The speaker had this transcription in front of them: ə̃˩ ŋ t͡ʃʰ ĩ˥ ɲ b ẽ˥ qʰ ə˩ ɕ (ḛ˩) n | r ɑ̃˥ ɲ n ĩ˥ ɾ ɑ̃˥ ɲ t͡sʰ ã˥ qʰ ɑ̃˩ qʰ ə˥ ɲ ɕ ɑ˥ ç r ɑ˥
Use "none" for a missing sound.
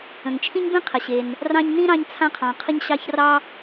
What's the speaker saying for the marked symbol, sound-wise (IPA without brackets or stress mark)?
e˩